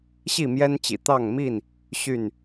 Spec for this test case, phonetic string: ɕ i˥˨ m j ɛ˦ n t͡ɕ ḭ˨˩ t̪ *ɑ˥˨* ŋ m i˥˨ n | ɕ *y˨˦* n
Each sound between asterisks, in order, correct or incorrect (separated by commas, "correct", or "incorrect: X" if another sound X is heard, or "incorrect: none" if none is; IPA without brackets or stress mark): correct, incorrect: y˥˨